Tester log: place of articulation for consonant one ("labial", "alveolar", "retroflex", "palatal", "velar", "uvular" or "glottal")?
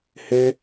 glottal